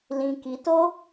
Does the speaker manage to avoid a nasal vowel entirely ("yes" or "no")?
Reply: no